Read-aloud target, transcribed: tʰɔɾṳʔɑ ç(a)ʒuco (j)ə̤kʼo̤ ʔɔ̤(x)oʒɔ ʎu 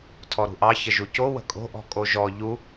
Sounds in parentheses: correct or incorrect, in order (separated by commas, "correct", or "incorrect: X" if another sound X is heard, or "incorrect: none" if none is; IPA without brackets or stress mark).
incorrect: ə, incorrect: w, incorrect: kʼ